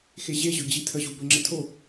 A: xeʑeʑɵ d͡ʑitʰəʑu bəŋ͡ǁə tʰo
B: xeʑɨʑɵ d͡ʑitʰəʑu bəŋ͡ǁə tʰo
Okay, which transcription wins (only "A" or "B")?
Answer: A